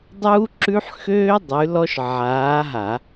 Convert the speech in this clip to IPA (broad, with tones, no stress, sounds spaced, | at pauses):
dˤ uː˦ ǁ ʉ˦ ħ x øː˦ dˤ ʉ˨˦ l ɔ˦ ʃ ʕ aː˨˦ ɦ a˧˩˧